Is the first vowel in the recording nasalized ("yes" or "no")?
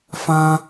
yes